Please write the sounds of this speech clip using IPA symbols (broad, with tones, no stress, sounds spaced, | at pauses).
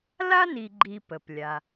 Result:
l a˥ n i˨ ɡ͡ǃ i˨ p ə˩ p lʲ a˩